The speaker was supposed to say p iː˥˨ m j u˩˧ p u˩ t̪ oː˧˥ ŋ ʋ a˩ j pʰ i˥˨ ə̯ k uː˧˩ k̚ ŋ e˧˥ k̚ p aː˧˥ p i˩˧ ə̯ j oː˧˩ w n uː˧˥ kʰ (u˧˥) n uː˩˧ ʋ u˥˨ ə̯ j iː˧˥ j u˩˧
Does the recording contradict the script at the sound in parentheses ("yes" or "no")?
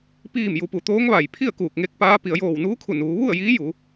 yes